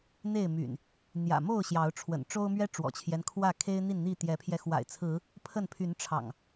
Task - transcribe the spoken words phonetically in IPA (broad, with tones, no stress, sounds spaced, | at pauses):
n̪ e˥˨ ɪ̯ m y̰˨˩ n | n̪ j ä̰˨˩ m o˥˨ ʊ̯ ɕ j ɑ˨˦ ʊ̯ ʈ͡ʂʰ w ə̰˨˩ n ʈ͡ʂ o˦ ʊ̯ m ɥ ɛ˦ ʈ͡ʂ w ɔ̰˨˩ t͡ɕʰ j ɛ˦ n kʰ w ä˥˨ kʰ e˦ ɪ̯ n̪ i˥˨ n n̪ i˥˨ t̪ j ɛ˨˦ pʰ j ɛ˧ x w a̰˨˩ ɪ̯ t͡sʰ ɹ̩˨˦ | pʰ ə˥˨ n pʰ y˨˦ n ʈ͡ʂʰ ɑ̰˨˩ ŋ